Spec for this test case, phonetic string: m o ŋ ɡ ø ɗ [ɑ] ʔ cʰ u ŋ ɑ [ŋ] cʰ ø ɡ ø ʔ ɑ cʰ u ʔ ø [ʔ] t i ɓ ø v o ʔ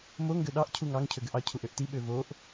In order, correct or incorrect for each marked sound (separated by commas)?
correct, correct, correct